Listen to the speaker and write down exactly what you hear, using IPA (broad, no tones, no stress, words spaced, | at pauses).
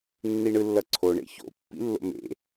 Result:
nːiɳɯlːʌǀʰo ɳḛço̰ pːḭlːo̰mḛ